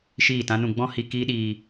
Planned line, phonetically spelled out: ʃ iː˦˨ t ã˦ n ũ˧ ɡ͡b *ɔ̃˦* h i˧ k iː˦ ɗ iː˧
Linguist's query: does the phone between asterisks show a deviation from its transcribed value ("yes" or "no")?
no